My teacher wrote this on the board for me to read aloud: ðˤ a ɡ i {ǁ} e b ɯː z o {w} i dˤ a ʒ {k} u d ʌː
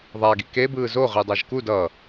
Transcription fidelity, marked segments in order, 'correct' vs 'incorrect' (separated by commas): incorrect, incorrect, correct